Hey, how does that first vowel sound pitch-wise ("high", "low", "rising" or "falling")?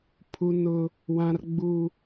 high